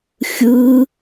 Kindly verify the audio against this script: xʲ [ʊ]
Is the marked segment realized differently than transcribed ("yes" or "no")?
yes